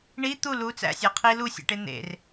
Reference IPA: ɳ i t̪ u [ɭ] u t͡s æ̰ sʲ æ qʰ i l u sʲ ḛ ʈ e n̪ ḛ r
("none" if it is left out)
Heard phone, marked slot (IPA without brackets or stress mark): l